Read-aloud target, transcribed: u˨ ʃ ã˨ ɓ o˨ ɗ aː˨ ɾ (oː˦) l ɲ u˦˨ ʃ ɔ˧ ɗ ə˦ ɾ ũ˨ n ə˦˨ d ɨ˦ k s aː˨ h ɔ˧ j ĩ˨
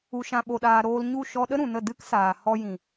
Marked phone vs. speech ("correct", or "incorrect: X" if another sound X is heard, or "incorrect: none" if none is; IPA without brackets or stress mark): incorrect: oː˧